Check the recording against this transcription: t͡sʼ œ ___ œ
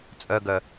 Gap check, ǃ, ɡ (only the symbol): ɡ